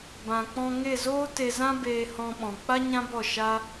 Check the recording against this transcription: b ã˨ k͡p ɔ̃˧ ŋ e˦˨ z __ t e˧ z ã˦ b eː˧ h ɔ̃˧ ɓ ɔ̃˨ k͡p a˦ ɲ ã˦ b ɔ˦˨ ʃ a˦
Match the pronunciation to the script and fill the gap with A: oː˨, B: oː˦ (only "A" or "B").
B